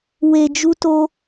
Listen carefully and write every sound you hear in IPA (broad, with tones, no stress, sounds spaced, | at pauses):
w e˧ d͡ʒ u˦ t o˦